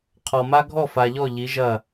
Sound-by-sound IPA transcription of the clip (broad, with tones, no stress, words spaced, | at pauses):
qʰɔ˨ma˦ ɡʱɔ˦˨fa˨ʎɔ˦˨ ʎi˨˦ʒɐ˦˨